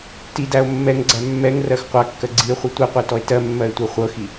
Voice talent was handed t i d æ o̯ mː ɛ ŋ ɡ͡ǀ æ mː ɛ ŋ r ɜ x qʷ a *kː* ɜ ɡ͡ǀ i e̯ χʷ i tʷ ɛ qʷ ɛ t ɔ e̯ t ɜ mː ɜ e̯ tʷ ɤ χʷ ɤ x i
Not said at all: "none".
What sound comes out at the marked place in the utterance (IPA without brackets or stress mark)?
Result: kː